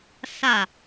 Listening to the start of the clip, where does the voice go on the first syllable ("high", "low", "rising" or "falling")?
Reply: falling